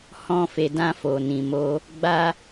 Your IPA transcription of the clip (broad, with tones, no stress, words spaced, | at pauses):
hɔ̃˧fe˨dã˧ fo˨nĩ˨mo˧ | ɡ͡ba˦